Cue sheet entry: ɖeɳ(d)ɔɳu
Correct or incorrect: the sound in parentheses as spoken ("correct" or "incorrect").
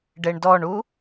correct